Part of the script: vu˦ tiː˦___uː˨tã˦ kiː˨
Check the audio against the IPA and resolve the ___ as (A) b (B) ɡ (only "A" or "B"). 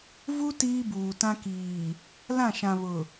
A